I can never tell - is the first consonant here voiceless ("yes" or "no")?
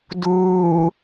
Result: no